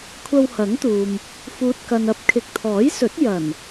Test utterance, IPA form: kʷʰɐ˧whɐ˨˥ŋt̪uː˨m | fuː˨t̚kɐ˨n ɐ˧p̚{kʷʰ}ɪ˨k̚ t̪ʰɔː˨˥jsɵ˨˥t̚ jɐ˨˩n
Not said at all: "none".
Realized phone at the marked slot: kʰ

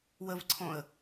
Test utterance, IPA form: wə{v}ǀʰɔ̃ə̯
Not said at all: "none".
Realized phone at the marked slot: v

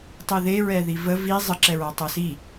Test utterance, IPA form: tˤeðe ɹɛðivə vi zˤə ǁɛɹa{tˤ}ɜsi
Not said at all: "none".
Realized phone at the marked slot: tˤ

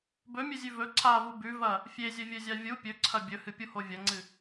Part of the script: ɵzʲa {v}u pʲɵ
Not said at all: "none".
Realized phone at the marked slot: vʲ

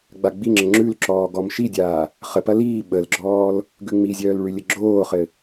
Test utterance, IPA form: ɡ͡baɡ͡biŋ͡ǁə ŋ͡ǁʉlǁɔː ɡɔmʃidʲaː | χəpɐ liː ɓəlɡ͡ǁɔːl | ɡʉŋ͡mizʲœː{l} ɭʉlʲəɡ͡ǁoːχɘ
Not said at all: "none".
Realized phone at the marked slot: l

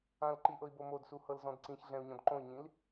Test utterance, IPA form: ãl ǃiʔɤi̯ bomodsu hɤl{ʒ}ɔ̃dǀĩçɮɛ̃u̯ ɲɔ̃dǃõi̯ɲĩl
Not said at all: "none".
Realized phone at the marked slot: z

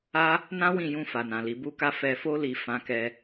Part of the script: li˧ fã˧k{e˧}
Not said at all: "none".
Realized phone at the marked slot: ɛ˧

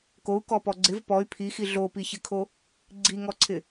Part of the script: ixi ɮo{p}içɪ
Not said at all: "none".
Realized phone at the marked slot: p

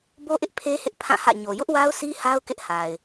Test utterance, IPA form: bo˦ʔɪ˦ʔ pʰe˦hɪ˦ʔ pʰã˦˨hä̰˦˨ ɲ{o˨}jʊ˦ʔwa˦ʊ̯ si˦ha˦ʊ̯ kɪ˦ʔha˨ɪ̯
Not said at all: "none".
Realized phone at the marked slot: o˨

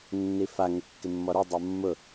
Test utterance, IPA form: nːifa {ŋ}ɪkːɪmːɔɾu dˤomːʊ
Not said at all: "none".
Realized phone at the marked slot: ŋ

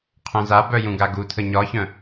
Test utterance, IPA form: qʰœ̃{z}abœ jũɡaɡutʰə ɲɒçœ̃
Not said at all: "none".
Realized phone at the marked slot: z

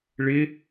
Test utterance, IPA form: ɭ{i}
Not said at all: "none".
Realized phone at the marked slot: ɪ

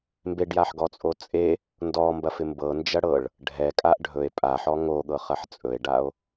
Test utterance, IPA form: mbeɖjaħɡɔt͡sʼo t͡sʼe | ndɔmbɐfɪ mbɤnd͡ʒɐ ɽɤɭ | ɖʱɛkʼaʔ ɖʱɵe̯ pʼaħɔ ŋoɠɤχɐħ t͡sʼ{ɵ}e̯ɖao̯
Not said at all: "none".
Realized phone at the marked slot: ɵ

